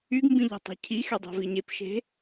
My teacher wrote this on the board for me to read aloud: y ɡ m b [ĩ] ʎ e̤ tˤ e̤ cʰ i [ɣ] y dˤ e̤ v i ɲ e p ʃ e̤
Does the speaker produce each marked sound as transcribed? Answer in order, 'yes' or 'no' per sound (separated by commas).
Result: yes, no